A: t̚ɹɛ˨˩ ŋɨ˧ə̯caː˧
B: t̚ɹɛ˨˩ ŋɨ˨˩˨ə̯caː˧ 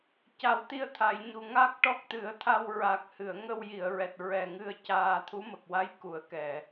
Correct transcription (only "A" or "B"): A